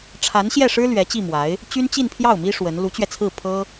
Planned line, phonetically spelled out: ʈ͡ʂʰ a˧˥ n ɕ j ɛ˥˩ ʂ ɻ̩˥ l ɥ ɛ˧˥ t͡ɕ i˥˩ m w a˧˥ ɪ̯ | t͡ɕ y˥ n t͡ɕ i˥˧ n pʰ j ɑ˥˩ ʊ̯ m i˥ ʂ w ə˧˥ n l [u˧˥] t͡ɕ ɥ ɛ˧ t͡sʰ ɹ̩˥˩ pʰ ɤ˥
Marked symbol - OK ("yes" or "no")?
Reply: yes